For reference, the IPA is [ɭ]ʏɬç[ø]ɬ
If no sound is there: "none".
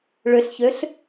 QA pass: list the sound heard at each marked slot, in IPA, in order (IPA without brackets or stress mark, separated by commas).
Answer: ɭ, ø